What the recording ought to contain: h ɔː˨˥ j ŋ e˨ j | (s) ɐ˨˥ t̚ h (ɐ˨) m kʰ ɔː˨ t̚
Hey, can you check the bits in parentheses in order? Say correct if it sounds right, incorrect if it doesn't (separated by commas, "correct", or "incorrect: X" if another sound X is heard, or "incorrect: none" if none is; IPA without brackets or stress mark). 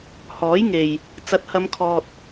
incorrect: t͡s, incorrect: ɐ˨˧